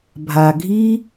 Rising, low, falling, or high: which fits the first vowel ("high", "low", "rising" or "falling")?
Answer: low